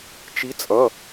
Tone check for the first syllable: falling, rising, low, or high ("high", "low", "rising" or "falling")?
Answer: rising